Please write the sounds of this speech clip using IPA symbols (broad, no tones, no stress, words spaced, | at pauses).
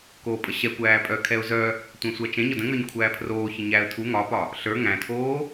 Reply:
koːpʼəɕɛ kʷæːpʼœ kʰɛʊ̯zœ | tʷɛ̃sʷæt͡ʃɛ̃ ɲɒdə̃ŋə˞ɲ kʷʰæːpʰroː çəɲæə̯ tʰu ŋɒpɒ | ɬə˞ ŋæ̃tʰoː